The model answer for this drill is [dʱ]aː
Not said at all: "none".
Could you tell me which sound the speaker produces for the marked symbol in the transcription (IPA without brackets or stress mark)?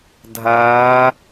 dʱ